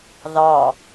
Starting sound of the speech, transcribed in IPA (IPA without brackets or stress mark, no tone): ð